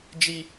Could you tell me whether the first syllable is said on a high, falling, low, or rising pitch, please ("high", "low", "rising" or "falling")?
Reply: high